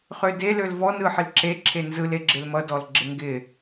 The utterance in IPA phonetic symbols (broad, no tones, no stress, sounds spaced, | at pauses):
χ ø d e l ø l v ɔ n ɯ ħ ɪ l ǁ e ǁʰ e n z ɯ l e ɡ͡ǁ ɪ l m ʌ d ɔ l ɡ͡ǁ ɪ ŋ ɡ ɪ